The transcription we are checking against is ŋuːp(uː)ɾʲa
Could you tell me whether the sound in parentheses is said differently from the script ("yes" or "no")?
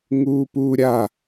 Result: no